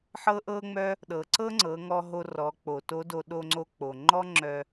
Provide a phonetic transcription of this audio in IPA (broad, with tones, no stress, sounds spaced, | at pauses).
ħ ɤ˥ ʔ ɤ˥ ŋ͡m œ˥ | ɗ ɤ˩ ǀ ɤ˥ ŋ͡ǀ ɤ˩˧ ŋ ɔ˧ ɦ o˧ r ɔ˩˧ k͡p o˩ t o˧˥ d o˧ ɗ o˧ ŋ͡ǀ o˧ k͡p o˩ ŋ͡ǃ ɔ˥ ŋ͡ǁ œ˧